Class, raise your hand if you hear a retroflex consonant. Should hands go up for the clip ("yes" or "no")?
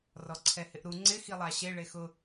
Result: yes